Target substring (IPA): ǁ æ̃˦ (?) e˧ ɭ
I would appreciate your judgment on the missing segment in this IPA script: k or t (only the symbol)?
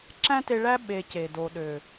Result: t